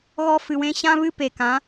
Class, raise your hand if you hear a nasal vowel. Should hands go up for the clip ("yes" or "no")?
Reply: yes